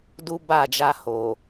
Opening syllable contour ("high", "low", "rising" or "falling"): high